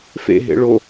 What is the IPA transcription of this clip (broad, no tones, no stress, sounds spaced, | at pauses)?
f ḛ ɦ ḛ ɭ o